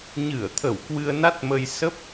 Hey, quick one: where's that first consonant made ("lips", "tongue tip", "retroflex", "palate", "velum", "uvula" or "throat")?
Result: palate